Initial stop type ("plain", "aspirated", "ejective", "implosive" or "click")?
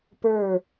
plain